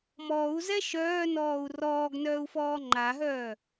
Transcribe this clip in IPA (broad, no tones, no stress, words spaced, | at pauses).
mɔːu̯zɛ ʃœːnɔːu̯ rɔːɡnœːu̯fɔː ŋ͡ǃaɦœː